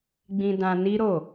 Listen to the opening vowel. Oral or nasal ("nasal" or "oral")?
nasal